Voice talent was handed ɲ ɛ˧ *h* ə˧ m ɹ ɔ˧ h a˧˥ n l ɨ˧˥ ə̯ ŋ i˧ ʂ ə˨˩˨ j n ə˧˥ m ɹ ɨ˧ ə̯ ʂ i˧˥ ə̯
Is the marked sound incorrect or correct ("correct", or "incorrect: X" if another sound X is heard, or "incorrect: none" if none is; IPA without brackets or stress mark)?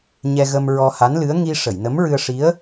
incorrect: ɣ